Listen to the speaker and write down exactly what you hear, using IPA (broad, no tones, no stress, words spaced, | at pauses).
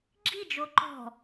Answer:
ɡ͡ǁi d͡ʒoǃɔ̤